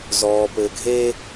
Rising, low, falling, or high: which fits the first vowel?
low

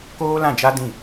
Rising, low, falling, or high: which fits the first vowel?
high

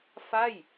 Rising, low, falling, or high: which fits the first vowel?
falling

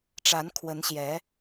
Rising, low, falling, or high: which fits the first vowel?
rising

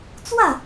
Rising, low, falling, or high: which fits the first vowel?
falling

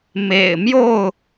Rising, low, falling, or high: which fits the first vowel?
low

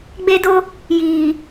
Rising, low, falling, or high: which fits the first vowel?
high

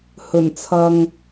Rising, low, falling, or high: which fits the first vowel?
low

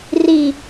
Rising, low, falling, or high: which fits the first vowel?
low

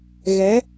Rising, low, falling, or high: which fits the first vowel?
rising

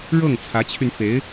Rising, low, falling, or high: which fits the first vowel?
falling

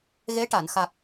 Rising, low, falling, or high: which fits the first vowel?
rising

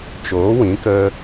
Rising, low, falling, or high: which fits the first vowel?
rising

